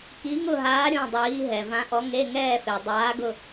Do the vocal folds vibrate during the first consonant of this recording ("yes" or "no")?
no